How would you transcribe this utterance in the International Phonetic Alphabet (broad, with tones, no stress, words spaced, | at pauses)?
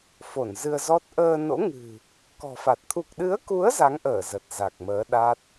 fo˧˩nzɨ˧ə̯zɔ˦˥t̚ ʔəː˧no̰˧˥ ŋɨ̤˨˩ | kɔ̤˨˩fa˨˩t̚ t̪ʰu˨˩k̚ɗɨ˨˦ə̯ku˨˦ə̯ za˨˦ŋʔəː˧˩ zə˨˩t̚za˨˩k̚məː˨˦ ɗa˦˥t̚